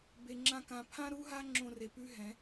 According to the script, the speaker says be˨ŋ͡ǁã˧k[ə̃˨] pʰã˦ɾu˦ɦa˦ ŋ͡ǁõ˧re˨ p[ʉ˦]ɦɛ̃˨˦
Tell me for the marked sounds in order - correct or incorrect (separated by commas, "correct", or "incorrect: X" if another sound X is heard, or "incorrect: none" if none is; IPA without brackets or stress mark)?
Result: incorrect: ã˨, correct